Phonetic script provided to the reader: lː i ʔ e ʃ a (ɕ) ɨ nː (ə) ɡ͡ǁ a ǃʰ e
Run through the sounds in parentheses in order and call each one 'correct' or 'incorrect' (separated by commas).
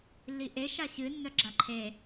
correct, incorrect